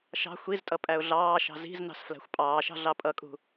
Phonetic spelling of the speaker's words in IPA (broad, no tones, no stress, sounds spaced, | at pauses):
ʃ ɑ̤ xʷ i z tʼ ʌ pʼ æ ʊ̯ ɮ ɑː ʃ ɑ̤ z i̤ z n ɑ̤ s f l æ̤ xʷ pʼ ɑː ʃ ɑ̤ ɮ ɑ pʼ ʌ kʼ ṳ